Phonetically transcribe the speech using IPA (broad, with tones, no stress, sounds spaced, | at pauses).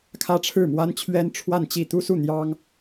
kʰ ä˥ ʈ͡ʂʰ ɻ̩˥˩ m w a˥ n t͡ɕʰ ɥ ɛ˥ n ʈ͡ʂʰ w a˥˧ n t͡ɕ i˥˩ t̪ u˥ s u˥˩ n̪ j ɑ˥ ŋ